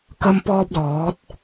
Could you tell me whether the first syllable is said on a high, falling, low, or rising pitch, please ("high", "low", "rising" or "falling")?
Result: high